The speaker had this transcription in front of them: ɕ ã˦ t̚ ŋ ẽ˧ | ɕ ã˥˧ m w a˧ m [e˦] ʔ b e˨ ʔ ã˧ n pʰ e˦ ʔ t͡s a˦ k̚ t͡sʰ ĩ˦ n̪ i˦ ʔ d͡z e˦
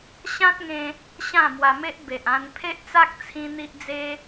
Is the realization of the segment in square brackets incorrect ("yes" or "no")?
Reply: no